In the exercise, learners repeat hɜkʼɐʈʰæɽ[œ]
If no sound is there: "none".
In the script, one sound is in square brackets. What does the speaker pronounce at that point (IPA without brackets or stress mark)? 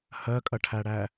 æ